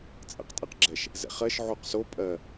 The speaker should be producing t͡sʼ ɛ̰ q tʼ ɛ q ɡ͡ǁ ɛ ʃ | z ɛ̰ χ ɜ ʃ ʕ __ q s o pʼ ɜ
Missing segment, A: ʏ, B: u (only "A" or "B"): B